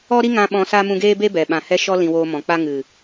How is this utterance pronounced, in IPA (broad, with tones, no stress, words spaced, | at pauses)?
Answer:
ɔ˦ɾi˦ŋã˧ ɓɔ̃˧sa˦mũ˧ɡeː˦ be˦bɛ˨ ɓã˨hɛ˧ʃɔ˧ lĩ˧woː˧mɔ̃˨k͡pa˦ ŋɨ˨